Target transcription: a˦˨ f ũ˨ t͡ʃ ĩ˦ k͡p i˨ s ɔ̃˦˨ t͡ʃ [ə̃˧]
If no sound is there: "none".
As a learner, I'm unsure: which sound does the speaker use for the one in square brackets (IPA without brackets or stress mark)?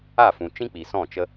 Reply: ə˧